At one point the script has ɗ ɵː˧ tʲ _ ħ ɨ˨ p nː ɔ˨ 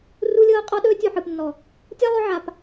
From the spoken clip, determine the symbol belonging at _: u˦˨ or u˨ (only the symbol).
u˨